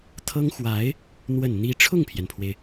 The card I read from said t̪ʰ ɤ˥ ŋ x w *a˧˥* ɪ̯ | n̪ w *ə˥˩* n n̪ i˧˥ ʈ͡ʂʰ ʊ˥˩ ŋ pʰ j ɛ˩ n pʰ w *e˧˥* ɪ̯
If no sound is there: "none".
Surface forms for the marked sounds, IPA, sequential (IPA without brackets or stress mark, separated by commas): a˧˥, ə˨˩, e˩